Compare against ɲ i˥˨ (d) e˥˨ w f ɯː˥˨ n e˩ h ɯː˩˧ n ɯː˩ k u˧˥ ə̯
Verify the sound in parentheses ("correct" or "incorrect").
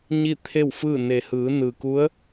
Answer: incorrect